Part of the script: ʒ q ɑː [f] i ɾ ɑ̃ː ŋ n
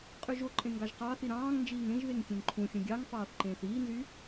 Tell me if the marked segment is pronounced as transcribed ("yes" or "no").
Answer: no